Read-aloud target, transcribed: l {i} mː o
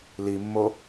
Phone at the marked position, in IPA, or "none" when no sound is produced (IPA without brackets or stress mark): i